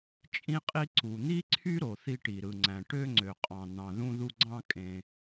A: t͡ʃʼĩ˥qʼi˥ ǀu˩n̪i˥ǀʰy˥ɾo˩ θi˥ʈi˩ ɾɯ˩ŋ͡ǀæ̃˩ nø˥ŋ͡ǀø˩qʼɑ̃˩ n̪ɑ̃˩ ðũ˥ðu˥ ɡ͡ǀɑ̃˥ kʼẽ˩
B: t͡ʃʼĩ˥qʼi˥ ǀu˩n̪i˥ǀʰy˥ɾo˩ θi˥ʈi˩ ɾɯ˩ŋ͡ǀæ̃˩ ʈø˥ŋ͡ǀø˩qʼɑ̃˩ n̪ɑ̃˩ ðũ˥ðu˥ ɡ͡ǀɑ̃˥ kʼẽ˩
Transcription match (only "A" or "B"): B